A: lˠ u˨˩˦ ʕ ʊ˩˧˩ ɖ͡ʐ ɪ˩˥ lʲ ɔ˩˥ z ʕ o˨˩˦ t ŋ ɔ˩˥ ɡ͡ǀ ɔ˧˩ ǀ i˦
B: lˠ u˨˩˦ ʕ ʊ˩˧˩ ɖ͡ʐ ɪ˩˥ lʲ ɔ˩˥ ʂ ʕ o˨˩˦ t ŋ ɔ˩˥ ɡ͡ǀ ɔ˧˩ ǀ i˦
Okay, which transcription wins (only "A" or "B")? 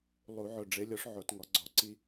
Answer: B